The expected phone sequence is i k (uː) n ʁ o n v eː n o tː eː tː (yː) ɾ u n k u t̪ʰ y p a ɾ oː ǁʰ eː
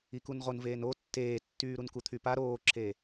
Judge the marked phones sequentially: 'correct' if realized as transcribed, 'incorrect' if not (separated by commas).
incorrect, correct